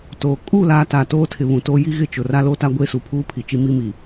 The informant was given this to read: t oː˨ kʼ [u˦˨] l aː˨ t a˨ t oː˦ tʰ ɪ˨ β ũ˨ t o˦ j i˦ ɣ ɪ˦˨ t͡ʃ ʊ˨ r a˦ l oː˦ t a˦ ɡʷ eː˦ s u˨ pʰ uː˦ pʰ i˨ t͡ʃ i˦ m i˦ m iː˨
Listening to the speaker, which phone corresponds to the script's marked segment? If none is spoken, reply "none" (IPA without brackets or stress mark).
u˦˨